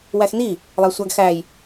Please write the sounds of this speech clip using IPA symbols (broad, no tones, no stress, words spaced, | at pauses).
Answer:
wæxni | lˠæsʷæɡxæj